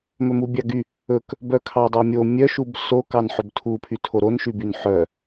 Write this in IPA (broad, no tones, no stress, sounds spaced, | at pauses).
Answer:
m ɵ m u bʲ ɑ ɡ y | ɵ k | b œ kʰ ɑ dˤ o mʲ o mʲ œ ʃ u b s o k ɑ n ħ ɵ b tʰ u pʰ y tʰ o ɾ o n ʃ y b y n ħ œ